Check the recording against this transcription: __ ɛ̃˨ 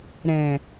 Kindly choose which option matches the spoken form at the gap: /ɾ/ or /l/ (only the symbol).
ɾ